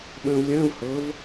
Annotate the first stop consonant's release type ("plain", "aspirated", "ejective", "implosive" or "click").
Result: implosive